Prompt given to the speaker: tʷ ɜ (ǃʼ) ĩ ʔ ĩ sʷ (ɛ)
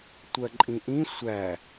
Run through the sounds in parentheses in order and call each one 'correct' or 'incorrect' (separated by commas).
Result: correct, incorrect